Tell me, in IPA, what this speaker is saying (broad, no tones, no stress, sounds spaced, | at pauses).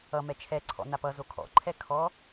ʌ m ɛ t͡ʃʰ ɛ ǀʰ ɔ̰ n a p ʌ z o kʰ ɔ̰ ǃʰ ɛ kʰ ɔ